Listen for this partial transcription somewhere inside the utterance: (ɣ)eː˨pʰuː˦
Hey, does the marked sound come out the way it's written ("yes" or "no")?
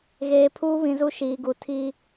yes